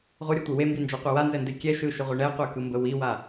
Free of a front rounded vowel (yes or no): yes